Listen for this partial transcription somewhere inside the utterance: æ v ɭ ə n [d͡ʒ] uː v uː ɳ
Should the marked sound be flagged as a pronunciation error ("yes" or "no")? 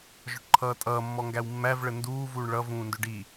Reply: yes